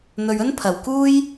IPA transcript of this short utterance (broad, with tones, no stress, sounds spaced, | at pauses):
n̪ ɵ˧ ɥ ɵ˥ n pʰ ɐ˨ w k uː˥ j